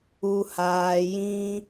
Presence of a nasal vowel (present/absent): present